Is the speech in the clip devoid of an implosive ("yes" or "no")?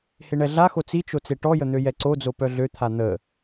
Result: yes